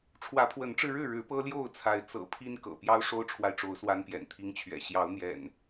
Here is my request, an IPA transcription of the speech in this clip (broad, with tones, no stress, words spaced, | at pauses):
ʈ͡ʂʰwä˨˦pʰwə˨˦nʈ͡ʂɻ̩˧ɻɻ̩˥˨ ɻɻ̩˨˦pɤ˦ ljo˥˨ʊ̯t͡sʰa˨˦ɪ̯ t͡sɤ̰˨˩pʰi˦n kɤ̰˨˩ pjɑ˦ʊ̯ʂo˦ʊ̯ʈ͡ʂʰwa˨ɪ̯ʈ͡ʂo˨˦ʊ̯ swa˦npjɛ̰˨˩nt̪ʰi˦ŋt͡ɕʰɥɛ̰˨˩ ɕjɑ˨˦ʊ̯n̪jɛ̰˨˩n